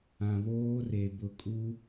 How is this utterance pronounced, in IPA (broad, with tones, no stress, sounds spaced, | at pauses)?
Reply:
ã˨ β oː˦ r e˨ b ʊ˨ kʼ u˦